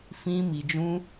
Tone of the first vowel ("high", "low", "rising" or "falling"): high